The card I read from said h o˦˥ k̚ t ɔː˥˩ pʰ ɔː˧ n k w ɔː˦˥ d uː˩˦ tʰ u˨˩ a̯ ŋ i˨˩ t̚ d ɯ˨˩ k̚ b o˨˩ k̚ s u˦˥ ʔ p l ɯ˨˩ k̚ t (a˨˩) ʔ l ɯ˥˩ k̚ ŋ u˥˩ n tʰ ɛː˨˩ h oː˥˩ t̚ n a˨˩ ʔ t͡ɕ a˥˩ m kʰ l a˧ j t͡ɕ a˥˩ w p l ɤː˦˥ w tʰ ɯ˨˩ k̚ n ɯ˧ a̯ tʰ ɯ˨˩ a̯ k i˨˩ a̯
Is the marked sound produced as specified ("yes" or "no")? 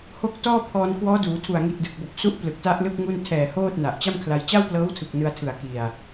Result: no